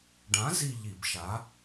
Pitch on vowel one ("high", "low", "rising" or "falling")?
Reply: rising